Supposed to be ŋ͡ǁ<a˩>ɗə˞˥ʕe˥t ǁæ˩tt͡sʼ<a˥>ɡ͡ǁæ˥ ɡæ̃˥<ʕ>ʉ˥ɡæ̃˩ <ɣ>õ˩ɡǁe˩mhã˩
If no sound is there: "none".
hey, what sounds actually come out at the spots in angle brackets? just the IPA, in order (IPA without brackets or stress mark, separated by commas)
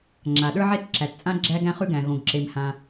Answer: a˩, ã˥, χ, ɣ